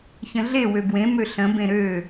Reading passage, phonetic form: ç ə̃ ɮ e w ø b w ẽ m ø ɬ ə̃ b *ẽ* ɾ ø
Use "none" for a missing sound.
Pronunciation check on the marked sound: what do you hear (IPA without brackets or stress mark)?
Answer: ẽ